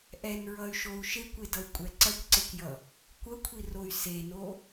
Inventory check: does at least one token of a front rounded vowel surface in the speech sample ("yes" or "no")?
yes